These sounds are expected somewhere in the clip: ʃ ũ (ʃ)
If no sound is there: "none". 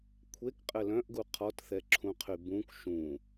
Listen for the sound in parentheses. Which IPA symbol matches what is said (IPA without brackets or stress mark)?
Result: none